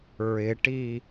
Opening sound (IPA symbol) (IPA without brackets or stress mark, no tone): ɹ